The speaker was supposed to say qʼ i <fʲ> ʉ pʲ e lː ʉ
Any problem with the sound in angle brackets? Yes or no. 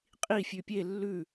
no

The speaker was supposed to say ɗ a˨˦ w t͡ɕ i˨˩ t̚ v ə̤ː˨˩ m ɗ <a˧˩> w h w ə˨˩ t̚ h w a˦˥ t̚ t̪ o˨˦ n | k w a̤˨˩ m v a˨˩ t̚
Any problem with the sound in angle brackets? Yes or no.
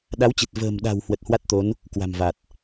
yes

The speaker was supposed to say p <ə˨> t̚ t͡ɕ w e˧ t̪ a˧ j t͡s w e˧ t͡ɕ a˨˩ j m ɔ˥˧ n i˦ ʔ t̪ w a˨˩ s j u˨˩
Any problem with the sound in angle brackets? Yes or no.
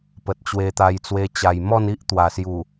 no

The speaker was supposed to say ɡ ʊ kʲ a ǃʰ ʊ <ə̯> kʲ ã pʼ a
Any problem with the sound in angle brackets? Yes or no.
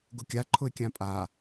yes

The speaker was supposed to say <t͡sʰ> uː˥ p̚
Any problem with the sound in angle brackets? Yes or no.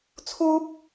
no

